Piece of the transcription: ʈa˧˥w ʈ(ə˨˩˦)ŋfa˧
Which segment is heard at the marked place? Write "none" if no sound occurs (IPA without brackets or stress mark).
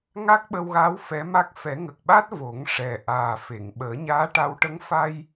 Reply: ə˧˥